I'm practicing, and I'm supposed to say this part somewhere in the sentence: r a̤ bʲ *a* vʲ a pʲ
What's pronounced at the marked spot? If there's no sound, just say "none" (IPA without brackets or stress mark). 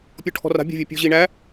a̤